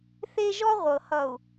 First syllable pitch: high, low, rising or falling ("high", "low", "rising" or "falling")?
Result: high